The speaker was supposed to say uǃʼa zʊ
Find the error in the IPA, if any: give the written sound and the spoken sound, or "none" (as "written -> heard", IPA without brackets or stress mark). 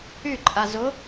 u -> y